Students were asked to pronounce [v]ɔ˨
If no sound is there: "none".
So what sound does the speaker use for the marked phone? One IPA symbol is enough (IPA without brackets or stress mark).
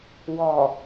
w